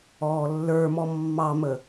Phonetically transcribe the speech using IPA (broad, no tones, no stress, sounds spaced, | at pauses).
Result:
ɔː lː ə˞ m ɔ mː ɑ m ə